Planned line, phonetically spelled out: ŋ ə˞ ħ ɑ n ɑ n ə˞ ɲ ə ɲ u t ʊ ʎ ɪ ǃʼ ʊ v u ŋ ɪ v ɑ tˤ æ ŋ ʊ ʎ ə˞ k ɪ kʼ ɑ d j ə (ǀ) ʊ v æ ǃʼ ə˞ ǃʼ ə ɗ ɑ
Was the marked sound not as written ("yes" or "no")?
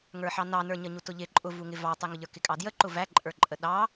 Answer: yes